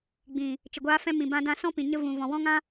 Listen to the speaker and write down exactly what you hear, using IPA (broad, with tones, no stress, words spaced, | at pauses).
ɡ͡bĩ˨ | t͡ʃə˨ɡʷaː˧fɛ̃˧ mĩ˨bã˧dã˧ sɔ̃˦pĩ˨ɲə˧ vũ˨ vɔ̃˨wɔ̃˦ŋã˦